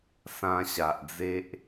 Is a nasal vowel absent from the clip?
no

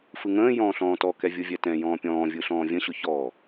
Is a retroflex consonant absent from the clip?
yes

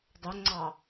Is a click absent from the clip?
no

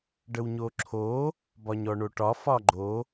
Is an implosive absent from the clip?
yes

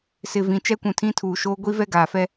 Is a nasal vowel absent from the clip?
no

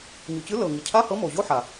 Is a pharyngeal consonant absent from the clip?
no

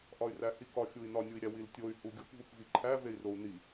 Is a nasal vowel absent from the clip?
yes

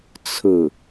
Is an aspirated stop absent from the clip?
no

